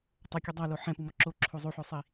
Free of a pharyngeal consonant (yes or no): no